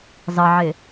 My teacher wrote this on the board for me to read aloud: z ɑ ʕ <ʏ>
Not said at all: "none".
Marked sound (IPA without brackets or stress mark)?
ɪ